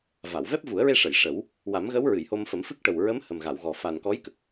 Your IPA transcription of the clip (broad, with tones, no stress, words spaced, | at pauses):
va˨˩˨w vɛ˦˥p̚vu˨˩˦ə̯ɹe˧ʂə˨˩˨j ʂə˨˩˦w | wa˨˩˦mɣə˧˥wɹɨ˨˩˨j ho˧mfə˨˩˦mfɨ˦˥k̚ ʈə˨˩wɹə˧˥m hə˨˩mɣa˨˩˨wɣɔ˨˩ fa˨˩nkɔ˧˥jkə˨˩k̚